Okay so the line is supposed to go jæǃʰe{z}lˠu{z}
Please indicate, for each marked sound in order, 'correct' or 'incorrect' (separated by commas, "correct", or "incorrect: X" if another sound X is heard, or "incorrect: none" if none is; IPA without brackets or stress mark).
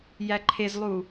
correct, incorrect: none